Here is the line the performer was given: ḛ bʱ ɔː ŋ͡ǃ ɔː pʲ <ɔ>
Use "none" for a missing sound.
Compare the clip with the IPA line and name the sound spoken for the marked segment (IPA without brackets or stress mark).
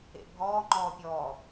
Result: ɔː